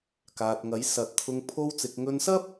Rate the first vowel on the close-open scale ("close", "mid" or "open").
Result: open